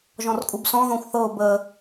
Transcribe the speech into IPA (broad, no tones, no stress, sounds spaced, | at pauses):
ʒ ɔ̃ r kʼ u b s ɔ̃ ð ɔ̃ xʷ θ ɤ ʊ̯ b ə